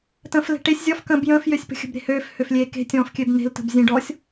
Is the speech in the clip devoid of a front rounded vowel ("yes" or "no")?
no